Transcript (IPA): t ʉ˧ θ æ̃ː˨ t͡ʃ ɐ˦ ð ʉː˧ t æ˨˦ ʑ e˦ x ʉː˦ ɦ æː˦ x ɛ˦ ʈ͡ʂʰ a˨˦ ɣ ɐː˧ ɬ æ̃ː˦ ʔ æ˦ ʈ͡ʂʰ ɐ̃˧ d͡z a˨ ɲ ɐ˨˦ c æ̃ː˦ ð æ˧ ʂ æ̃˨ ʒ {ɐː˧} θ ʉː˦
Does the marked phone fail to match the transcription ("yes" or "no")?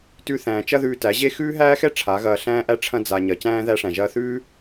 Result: no